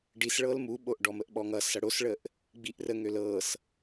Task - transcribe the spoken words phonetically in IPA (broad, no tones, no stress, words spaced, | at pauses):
ɖisɭɤl muɓoʔ ɖɔməʔɓɔŋʌ sʌɽosɭəʔ | ɡ͡biʔrəŋøl ɤs